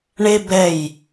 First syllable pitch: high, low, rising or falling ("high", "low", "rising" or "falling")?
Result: high